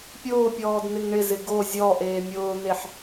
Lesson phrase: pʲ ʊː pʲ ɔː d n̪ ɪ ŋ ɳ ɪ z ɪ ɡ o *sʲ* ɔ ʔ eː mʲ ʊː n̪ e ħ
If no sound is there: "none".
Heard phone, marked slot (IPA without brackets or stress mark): zʲ